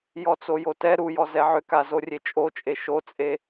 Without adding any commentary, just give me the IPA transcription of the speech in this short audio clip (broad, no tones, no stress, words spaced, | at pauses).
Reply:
jɔt͡sojotɛ ɾujɔ zɛʕʏka zorʲet͡ʃʼot͡ʃʼe ʃot͡sʼe